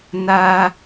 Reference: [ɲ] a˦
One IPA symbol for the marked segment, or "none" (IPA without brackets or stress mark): n